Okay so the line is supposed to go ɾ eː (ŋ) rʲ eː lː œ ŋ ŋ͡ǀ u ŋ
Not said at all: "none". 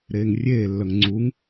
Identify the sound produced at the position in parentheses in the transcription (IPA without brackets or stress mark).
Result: ŋ